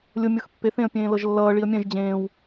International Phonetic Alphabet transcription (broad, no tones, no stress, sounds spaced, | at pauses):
lʲ ʊ mʲ ɤ x pː e θ ẽ ə̯ pʲ ẽː l ɤ ʒ lː ʌː ɭ i ə̯ mʲ ɛ̃ ʒ d͡ʑ ẽː w